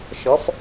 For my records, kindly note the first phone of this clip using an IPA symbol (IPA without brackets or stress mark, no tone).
ʃ